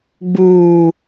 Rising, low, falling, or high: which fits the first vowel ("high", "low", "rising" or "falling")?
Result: low